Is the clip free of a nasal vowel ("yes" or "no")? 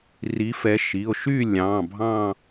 no